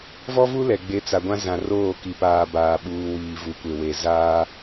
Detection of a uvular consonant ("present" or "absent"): absent